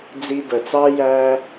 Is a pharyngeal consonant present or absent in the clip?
absent